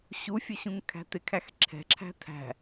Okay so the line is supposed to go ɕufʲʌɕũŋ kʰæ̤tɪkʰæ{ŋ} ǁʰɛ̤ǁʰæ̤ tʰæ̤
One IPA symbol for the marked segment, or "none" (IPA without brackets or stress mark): x